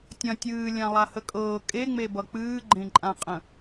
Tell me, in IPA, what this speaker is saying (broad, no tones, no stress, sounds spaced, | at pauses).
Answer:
tʲ ɐ̃ tʲ ɨː lʲ ã lˠ a h ə kʼ ɤː kʼ e ŋ͡m e b ʌ k͡p ɨː ɡ͡ǃ ẽ ǃʼ ã qʼ ə̃